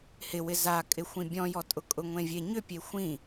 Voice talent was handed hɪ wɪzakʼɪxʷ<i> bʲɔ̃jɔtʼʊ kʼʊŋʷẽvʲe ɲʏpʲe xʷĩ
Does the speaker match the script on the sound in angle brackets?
no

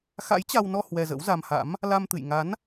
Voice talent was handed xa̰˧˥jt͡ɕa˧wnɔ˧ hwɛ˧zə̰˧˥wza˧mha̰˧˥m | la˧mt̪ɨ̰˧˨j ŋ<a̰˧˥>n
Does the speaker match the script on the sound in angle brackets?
no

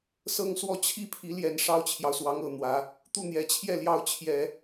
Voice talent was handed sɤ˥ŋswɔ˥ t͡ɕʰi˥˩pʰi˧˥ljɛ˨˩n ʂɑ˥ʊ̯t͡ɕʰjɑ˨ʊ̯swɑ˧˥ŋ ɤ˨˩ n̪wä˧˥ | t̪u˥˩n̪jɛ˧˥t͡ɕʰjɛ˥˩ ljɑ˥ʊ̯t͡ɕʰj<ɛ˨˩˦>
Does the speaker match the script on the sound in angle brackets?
yes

